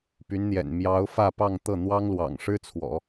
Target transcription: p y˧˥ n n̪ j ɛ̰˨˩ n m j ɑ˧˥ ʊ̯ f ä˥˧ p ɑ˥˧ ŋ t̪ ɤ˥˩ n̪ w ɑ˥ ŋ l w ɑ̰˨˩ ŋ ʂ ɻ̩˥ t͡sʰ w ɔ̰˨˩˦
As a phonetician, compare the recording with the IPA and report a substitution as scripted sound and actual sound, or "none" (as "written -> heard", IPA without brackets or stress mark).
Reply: none